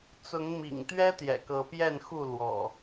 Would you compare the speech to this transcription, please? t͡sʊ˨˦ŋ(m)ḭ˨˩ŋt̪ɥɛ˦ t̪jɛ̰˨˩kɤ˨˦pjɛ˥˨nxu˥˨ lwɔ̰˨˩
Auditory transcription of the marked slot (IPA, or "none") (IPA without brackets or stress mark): m